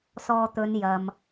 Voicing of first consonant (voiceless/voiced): voiceless